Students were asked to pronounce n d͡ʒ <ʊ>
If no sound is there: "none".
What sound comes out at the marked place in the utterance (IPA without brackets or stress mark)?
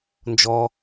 ɔ